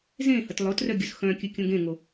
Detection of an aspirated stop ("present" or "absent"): absent